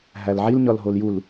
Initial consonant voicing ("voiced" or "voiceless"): voiced